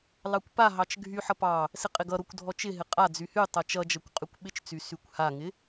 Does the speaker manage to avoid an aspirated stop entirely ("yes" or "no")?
yes